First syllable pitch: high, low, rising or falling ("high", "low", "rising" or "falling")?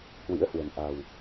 rising